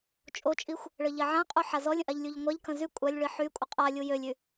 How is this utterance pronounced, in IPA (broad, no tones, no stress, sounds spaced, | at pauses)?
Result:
t͡ʃʼ o t͡ʃʼ i xʷ | ɭ ə ʎ ɛ ʕ ã qʼ u ħ a z ɔ lʲ ə̃ ʔ a ʎ lʲ u ʎ ŋʷ a ʎ k ə̃ z y kʷʼ a lʲ ɭ i ħ y kʷʼ ə qʼ a lʲ u j ø lʲ y